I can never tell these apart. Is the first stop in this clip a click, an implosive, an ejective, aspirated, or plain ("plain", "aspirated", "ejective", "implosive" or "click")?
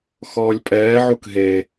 ejective